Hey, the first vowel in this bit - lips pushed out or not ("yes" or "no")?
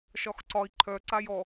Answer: yes